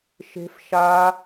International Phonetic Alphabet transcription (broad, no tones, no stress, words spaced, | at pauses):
ʃe̤f ʃa